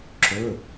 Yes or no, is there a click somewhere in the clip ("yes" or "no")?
yes